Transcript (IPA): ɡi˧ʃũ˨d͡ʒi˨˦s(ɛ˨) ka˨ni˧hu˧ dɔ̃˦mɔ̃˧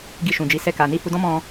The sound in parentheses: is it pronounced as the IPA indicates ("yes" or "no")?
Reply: no